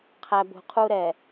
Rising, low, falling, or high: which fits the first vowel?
low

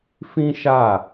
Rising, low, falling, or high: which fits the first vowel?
high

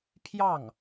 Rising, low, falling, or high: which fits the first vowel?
falling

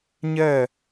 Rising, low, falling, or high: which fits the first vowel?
falling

